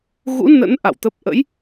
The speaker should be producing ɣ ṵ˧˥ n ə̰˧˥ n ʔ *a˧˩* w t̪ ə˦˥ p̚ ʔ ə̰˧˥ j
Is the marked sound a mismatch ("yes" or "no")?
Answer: yes